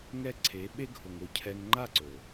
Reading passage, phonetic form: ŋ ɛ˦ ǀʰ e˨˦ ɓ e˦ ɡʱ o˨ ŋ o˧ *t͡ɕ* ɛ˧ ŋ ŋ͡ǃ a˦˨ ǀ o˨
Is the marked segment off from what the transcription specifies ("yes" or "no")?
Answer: yes